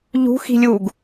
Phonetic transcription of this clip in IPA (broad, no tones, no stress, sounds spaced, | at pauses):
ʎ ṳ x i̤ lʲ u ɡ